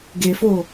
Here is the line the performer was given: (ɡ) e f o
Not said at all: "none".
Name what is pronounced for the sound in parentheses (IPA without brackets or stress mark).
ɡ